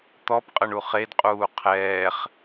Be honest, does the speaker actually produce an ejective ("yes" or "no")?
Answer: yes